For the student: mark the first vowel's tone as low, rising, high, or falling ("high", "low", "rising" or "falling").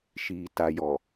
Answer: low